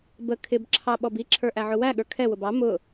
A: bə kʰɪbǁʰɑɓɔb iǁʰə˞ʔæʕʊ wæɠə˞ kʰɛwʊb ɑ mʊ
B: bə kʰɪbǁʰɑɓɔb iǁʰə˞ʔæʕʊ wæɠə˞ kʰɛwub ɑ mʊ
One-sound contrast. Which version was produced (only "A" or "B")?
A